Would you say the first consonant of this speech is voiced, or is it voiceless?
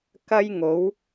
voiceless